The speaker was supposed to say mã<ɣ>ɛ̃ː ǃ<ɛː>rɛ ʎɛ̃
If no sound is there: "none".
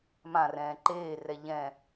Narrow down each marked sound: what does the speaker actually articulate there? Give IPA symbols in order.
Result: r, eː

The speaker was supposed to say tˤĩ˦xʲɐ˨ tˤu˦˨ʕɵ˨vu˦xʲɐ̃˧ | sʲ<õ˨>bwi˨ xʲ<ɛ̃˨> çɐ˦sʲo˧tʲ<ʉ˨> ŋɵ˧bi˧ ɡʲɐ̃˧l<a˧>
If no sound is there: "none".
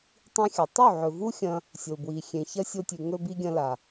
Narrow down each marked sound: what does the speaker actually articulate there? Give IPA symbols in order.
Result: o˨, ẽ˨, ʉ˨, a˨

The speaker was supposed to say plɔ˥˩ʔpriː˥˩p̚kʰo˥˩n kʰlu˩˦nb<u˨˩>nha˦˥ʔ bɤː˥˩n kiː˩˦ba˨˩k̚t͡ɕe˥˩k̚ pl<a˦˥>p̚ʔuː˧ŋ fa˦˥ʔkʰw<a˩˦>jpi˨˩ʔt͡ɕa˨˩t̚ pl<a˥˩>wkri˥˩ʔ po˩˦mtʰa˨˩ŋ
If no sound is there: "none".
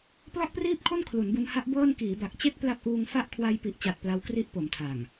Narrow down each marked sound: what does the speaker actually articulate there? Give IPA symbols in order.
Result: u˧, a˦˥, a˧, a˦˥

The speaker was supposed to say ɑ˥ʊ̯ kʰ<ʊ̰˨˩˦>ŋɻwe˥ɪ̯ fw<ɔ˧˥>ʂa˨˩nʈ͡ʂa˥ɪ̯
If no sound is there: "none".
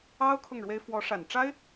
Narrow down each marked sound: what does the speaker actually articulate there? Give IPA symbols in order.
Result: ʊ˥˩, ɔ˧˥

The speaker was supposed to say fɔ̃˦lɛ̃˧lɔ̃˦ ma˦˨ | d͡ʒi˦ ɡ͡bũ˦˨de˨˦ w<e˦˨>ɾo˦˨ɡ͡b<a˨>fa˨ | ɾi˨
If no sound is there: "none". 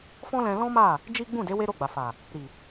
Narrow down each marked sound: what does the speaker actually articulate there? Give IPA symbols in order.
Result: e˦, a˨

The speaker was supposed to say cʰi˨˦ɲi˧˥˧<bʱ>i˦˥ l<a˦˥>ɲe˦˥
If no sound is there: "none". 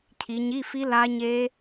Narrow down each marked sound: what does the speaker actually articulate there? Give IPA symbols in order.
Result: f, a˦˥

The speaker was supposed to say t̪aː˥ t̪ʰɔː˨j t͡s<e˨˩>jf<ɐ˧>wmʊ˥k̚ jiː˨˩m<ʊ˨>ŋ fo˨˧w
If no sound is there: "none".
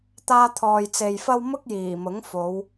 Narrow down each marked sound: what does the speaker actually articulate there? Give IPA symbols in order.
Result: e˨, ɐ˥, ʊ˨˥

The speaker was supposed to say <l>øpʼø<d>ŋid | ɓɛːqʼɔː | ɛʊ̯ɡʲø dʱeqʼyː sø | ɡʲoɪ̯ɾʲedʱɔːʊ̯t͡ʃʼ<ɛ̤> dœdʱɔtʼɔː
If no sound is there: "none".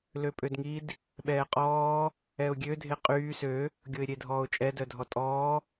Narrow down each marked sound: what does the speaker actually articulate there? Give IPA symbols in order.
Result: l, d, ɛ

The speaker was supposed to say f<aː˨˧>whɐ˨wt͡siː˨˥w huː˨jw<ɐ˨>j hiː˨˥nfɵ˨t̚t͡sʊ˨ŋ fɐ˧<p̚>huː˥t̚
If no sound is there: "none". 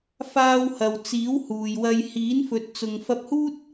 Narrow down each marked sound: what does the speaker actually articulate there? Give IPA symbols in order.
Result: aː˧, ɐ˧, p̚

